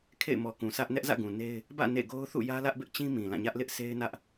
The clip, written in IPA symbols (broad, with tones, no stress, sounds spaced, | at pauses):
kʰ ḛ˦˨ ɪ̯ m ɔ˨ k ũ˨ s ä˦ ʔ n ɛ˦ ʔ z ä̰˦˨ ɡ ũ˨ n e˦ ɪ̯ | b ä̰˦˨ n ḛ˦˨ ɡ o˦ ʊ̯ θ ṵ˦˨ j ä˦ l ä˦ ʔ b ɪ˦ ʔ t͡ɕ ĩ˦ m ĩ˨ l ã˦˨ ɲ ä˦ ʔ l ɪ˦ ʔ s e˦ ɪ̯ n ä˦ ʔ